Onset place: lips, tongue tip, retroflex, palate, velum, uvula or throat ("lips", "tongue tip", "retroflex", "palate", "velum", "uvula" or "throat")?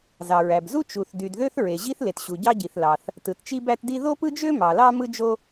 tongue tip